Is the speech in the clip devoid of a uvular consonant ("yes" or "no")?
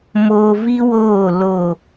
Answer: yes